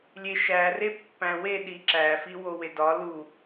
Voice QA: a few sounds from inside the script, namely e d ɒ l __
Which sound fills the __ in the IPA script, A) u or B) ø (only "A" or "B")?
A